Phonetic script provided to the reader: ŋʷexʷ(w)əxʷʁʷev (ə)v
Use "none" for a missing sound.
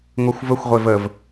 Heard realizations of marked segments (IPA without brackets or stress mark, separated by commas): v, ə